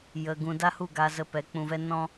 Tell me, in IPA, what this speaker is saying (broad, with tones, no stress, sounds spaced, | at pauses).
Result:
j ə˧ ɡ ũ˧ d a˦ h u˦˨ ɡ a˧ z ə˧ p ɛ˨˦ k͡p ũ˧ v ɛ˦ n ɔ̃˦